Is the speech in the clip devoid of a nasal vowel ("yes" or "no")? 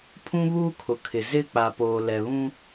no